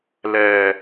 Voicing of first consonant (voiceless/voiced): voiced